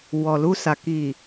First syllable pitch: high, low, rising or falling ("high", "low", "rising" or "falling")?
low